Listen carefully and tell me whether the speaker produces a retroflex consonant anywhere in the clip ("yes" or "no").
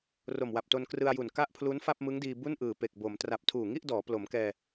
no